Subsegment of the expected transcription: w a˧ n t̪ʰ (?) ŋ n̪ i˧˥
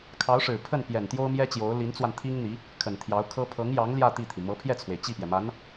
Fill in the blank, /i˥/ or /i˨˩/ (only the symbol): i˥